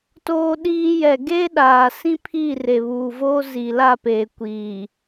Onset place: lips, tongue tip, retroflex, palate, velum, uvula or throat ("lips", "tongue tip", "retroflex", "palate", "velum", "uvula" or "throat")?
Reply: tongue tip